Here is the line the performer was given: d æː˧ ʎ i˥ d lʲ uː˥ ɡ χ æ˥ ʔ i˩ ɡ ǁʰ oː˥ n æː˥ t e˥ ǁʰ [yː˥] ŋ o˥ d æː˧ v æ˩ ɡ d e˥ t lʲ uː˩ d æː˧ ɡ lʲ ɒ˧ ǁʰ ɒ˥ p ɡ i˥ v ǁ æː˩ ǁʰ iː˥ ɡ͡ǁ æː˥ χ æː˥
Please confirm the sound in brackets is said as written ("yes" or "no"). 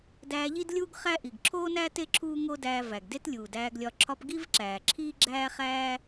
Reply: no